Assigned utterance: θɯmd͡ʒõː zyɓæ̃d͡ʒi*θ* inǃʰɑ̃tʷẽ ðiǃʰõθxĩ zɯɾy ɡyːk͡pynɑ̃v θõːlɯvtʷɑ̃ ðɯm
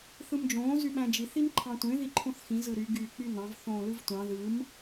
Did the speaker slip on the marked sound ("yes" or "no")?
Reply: no